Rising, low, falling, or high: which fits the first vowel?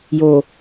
low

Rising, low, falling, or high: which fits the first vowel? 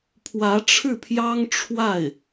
rising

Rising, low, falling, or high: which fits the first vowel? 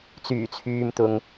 low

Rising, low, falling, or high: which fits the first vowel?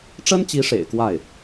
high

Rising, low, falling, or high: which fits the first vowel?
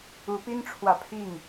rising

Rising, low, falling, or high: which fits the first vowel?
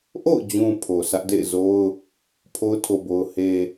falling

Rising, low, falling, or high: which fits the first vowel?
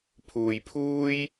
low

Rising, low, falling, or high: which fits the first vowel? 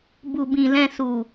low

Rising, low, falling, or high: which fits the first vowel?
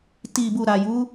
low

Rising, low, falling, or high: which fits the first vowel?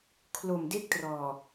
low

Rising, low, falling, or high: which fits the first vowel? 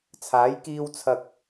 rising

